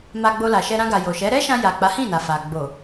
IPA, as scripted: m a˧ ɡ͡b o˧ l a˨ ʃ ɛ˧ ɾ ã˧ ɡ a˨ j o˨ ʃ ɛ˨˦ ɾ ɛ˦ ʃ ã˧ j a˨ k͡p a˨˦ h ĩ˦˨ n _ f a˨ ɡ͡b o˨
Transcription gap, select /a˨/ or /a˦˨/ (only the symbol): a˨